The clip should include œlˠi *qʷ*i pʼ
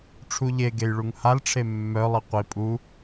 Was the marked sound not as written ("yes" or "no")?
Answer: no